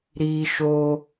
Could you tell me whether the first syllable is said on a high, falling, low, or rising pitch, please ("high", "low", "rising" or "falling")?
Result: high